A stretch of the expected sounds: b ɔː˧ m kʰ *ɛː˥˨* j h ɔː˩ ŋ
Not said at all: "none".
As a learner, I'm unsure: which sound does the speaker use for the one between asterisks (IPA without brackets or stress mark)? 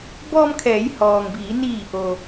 ɛː˩˧